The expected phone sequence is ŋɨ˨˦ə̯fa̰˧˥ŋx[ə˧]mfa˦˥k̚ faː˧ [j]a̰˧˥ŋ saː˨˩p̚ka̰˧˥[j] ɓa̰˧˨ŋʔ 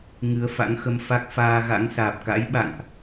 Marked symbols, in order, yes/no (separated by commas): yes, no, yes